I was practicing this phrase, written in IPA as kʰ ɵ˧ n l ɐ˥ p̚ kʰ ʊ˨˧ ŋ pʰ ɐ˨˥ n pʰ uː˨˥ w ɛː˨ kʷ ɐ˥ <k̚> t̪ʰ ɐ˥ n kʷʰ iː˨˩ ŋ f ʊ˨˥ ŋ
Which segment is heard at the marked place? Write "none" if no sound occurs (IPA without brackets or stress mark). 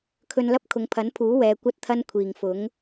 t̚